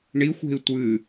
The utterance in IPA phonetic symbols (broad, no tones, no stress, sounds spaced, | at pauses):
ɳ i xʷ e̤ i̯ tʷ ɨ